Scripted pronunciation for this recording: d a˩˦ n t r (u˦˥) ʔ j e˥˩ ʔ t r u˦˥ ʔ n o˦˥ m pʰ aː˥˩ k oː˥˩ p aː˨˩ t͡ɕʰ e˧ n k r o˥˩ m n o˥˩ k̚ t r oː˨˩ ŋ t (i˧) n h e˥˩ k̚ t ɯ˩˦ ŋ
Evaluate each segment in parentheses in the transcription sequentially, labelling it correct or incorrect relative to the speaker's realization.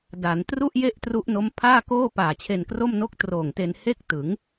incorrect: u˥˩, incorrect: e˧

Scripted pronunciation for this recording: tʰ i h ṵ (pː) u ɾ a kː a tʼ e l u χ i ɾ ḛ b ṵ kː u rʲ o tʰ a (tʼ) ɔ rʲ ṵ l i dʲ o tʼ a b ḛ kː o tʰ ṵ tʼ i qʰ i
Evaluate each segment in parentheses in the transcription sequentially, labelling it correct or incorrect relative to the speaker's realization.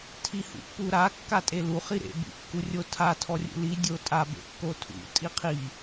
correct, incorrect: tʰ

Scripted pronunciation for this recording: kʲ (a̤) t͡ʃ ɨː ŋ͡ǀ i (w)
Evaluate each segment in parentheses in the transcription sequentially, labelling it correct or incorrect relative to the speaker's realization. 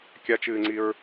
incorrect: a, incorrect: ɹ

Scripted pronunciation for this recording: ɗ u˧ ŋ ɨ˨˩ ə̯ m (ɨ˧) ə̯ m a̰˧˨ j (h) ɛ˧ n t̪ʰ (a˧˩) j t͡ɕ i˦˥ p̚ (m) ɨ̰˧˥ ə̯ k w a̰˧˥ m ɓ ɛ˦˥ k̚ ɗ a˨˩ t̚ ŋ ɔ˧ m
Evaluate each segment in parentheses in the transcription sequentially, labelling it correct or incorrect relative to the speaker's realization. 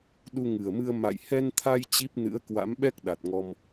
correct, correct, incorrect: a˧, incorrect: n

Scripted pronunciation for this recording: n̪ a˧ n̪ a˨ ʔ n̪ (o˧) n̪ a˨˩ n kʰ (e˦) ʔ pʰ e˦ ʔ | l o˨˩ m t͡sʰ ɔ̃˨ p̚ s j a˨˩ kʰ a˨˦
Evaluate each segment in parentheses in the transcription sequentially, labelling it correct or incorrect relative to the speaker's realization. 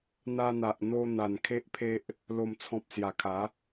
correct, correct

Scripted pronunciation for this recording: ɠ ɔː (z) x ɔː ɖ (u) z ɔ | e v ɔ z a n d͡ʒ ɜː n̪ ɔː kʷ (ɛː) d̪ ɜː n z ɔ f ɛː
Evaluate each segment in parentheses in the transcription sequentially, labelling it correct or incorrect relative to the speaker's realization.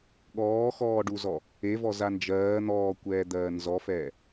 incorrect: none, correct, correct

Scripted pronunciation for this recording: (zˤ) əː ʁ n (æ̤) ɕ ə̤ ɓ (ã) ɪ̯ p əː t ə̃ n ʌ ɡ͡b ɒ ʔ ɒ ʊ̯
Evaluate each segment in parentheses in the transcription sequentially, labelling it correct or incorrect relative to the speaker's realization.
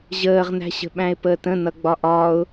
incorrect: ʑ, correct, incorrect: æ̃

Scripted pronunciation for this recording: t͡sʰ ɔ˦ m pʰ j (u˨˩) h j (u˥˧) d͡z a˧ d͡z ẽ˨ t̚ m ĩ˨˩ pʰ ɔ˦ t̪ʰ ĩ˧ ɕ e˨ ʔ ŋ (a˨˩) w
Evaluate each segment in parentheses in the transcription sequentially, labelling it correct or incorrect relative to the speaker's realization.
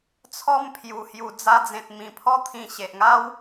correct, incorrect: u˨˩, incorrect: a˦

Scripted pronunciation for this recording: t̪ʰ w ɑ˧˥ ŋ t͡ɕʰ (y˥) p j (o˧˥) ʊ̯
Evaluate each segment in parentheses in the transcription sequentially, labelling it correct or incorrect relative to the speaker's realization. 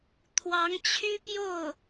correct, incorrect: o˥˩

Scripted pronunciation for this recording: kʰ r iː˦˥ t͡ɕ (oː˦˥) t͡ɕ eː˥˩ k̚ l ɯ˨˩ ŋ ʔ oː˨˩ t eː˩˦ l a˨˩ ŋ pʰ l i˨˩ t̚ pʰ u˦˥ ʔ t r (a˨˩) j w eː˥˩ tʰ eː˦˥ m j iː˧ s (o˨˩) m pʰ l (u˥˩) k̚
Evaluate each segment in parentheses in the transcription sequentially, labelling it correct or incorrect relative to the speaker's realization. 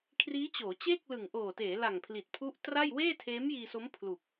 incorrect: oː˩˦, incorrect: a˥˩, incorrect: o˦˥, incorrect: u˨˩

